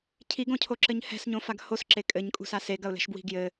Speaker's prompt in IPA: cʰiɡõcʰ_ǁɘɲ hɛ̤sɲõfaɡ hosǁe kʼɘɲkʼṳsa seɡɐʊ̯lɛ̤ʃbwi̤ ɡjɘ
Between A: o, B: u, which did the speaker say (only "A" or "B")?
A